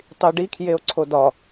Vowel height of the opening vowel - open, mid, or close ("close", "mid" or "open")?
close